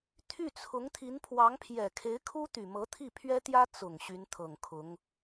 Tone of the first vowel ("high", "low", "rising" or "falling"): falling